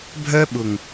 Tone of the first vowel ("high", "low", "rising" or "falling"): high